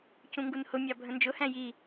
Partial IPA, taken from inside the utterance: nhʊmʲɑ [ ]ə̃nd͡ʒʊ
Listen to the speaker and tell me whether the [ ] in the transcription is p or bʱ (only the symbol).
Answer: bʱ